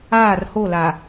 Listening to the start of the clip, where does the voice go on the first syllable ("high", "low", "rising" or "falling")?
falling